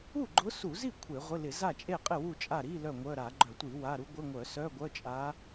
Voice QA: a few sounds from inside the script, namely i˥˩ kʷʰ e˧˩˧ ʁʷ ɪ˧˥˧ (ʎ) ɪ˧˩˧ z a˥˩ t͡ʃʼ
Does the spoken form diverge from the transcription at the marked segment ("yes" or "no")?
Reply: yes